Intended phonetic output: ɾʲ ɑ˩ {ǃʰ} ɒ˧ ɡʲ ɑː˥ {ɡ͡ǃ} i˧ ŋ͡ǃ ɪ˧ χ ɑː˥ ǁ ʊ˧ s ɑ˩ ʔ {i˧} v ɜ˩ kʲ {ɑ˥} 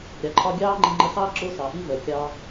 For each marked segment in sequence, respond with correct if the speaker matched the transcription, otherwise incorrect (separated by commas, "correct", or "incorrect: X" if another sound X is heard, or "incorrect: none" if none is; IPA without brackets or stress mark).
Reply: correct, incorrect: ŋ͡ǃ, correct, incorrect: ɑː˥